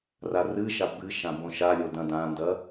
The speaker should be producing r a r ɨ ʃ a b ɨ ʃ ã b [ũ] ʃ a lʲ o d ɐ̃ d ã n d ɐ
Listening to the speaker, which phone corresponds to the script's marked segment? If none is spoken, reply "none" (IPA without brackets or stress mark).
õ